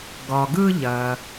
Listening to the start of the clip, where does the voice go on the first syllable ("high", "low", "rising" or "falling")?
low